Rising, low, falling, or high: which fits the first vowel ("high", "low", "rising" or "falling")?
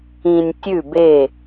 low